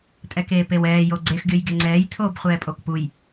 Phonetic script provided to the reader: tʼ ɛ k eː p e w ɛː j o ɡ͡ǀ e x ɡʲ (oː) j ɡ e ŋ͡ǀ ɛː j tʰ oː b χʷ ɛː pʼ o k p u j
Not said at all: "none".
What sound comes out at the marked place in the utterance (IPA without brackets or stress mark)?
o